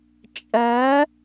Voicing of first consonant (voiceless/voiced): voiceless